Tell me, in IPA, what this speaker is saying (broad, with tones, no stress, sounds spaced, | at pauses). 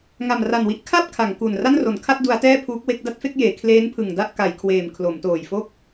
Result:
ŋ a˨˩ m r a˨˩ n w i˦˥ ʔ kʰ a˥˩ p̚ kʰ a˩˦ ŋ k u˨˩ n r a˥˩ n r o˩˦ n kʰ a˥˩ t̚ d u˦˥ a̯ t ɛː˥˩ pʰ uː˦˥ k̚ w e˥˩ k̚ d a˥˩ t̚ f e˥˩ k̚ j eː˩˦ kʰ l eː˦˥ n pʰ ɯ˨˩ ŋ d a˥˩ ʔ k a˩˦ j kʰ w eː˨˩ m kʰ l o˩˦ m t oː˨˩ j f o˥˩ k̚